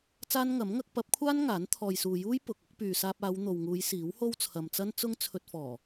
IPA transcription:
t͡s aː˥ n ŋ ɐ˨˥ m ŋ ɐ˥ k̚ p ɐ˨˥ p̚ kʷʰ aː˥ n ŋ aː˨˥ n t̪ʰ ɔː˨ j s uː˨ j uː˥ j p ʊ˨ k̚ ʊ˨˥ k̚ p yː˨ s aː˧ p̚ aː˨˧ w n̪ o˨ w ŋ uː˨˧ j s iː˨˥ w h o˥ w t͡sʰ ɐ˨ m t͡s ɐ˥ n t͡s ʊ˥ ŋ t͡sʰ ɵ˧ t̚ f ɔː˨˩

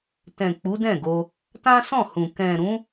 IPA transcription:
t ɛ̃˨ k͡p u˨˦ d ɛ̃˦˨ ɡ o˧ | t ã˦ s ɔ̃˦˨ h ũ˨ k ɛ̃˨ ɾ ũ˨˦

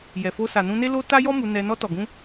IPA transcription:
j ɛ˨ f o˧ s a˨ n ũ˧ n e˦ l o˦ t a˦ j ɔ˦ m u˧ n ɛ˧ n ɔ˧ t ɔ˨ ɡ ũ˧

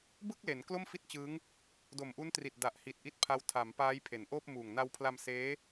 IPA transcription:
b ɯ˥˩ k̚ l e˩˦ n k l o˥˩ m f i˥˩ t̚ t͡ɕ ɯː˦˥ ŋ | d o˨˩ m ʔ u˦˥ n t r i˨˩ t̚ d a˨˩ ʔ h i˨˩ t̚ ʔ i˦˥ t̚ pʰ a˦˥ w tʰ a˩˦ m p aː˦˥ j pʰ e˩˦ n ʔ oː˥˩ p̚ m uː˨˩ ŋ n a˧ w pʰ l a˧ m s eː˦˥

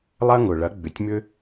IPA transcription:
lˠ ɐ˥ ŋ ʊ˩ ɭ ɐ˩˥ ɡ͡b ʏ˩ tʲ m ʏ˥

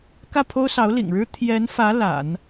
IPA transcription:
k ä˥˩ pʰ o˥ ʊ̯ s ɑ˧˥ ʊ̯ l ḭ˨˩ ŋ ɻ ɻ̩˥ t̪ʰ j ɛ˧˥ n f ä˧˥ l a̰˨˩˦ n

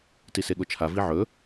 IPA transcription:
t i s e ɠ o t͡ʃʰ a v i ʕ ɵ

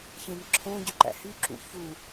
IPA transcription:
ç ẽ n ǁʰ õ ɟ ø ǃ æ̰ h y ǁ ṵ ç u

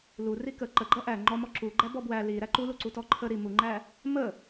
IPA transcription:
l u r i k ə ǃ ə ɡ͡ǃ ʌ ʔ æ ŋ͡ǃ ɔ m ɔ ǁ u ɡ͡ǃ æ b ɔ b w æ l i ɾ æ ǃ u l u ǀ u t ɔ ǃʰ ə ɾ i m u ŋ͡ǃ æ | m ə

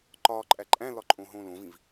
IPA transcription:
ǃ ɒ ǃʼ æ ǃʼ æ̃ l ɒ ǃʼ õ ɦ õ l õ v ĩ v

